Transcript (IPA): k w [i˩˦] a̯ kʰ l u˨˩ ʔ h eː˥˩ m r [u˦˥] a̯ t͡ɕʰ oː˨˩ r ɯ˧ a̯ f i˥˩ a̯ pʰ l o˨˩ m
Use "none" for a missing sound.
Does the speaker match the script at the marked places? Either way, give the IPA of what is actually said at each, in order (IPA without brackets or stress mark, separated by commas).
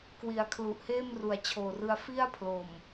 i˩˦, u˨˩